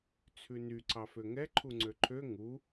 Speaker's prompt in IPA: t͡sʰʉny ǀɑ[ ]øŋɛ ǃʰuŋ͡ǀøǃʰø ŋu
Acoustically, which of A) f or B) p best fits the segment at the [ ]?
A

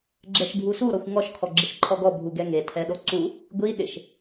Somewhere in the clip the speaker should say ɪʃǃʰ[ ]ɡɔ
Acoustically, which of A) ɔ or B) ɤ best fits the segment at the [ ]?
A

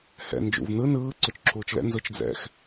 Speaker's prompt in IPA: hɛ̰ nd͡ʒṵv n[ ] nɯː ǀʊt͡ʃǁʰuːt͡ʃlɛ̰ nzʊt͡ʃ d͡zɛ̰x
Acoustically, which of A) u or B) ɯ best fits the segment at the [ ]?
B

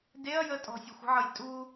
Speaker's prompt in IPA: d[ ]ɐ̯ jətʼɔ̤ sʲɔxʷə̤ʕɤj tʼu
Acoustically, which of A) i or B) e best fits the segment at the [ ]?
B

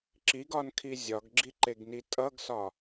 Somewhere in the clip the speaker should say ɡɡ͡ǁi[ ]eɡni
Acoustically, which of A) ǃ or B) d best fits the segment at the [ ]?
A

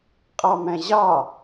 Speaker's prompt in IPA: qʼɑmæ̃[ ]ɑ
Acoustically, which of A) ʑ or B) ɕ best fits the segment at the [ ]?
A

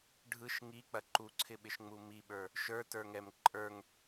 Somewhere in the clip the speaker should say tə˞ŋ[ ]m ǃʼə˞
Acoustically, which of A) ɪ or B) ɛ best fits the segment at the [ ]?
B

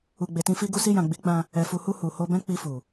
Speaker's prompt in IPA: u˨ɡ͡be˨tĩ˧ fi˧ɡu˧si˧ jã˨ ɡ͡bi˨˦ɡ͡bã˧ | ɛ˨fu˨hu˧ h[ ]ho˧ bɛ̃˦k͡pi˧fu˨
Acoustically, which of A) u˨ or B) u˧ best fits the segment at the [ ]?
A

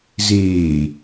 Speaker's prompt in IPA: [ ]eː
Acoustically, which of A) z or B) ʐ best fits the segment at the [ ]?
A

